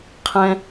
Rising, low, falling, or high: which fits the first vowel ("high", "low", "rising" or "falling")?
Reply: high